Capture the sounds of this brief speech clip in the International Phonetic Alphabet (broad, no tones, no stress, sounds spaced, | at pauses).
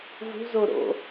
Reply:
v ṳ z o ɾ o̰